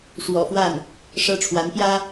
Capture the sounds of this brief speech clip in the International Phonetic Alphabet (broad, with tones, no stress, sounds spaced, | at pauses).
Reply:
ʂ w ɔ̰˨˩ f w a˥˩ n | ʂ ɤ˥ ʈ͡ʂʰ w a˧˥ n p j ä˥